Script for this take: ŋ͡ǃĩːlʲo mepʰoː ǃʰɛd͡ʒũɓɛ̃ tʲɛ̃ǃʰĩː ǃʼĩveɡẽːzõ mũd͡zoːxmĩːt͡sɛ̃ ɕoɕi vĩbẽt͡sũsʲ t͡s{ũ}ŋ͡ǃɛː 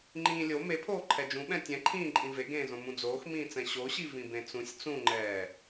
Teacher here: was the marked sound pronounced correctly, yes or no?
yes